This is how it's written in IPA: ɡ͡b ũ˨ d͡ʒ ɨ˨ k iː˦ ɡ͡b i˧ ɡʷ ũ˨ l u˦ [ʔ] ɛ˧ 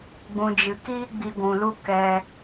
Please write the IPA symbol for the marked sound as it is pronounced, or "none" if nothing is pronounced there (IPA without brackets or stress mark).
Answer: k